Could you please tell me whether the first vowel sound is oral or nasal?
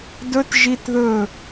oral